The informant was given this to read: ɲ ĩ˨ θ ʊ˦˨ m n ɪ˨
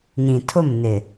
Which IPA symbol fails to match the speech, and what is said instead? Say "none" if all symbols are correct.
θ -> tʰ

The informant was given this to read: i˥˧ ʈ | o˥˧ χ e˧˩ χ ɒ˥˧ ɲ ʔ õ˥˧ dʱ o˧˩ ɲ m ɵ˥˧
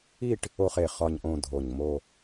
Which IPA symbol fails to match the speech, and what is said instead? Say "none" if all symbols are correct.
ɵ˥˧ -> o˥˧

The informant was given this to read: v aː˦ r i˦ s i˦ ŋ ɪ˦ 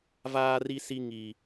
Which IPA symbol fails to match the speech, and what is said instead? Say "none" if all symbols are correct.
ɪ˦ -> i˦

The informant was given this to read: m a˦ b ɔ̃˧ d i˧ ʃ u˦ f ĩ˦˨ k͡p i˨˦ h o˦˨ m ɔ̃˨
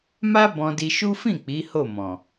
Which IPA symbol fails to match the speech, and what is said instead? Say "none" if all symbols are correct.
none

